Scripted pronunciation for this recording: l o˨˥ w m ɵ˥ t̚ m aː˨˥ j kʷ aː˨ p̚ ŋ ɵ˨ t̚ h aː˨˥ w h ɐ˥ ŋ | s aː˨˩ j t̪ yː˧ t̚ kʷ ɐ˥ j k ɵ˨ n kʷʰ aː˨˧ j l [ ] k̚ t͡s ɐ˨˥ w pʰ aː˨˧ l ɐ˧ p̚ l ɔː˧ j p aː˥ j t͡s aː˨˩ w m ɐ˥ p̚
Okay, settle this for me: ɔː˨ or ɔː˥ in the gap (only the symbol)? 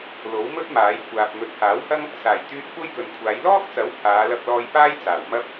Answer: ɔː˥